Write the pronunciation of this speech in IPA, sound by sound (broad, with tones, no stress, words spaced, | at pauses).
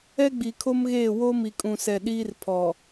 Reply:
ɛ˦ɡ͡bi˨kʰo˦mɣeː˦˨ wo˦mi˨kʼũ˨sɛ˨ ɗiː˦rpʰɔ˨